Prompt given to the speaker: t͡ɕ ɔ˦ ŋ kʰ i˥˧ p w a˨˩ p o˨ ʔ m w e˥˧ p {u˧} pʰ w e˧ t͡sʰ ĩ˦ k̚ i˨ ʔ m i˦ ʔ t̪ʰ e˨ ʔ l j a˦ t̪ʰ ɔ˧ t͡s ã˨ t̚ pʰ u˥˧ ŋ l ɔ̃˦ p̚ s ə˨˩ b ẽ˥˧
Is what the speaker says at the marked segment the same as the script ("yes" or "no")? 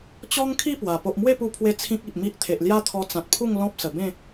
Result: yes